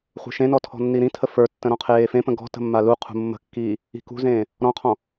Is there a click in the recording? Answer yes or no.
no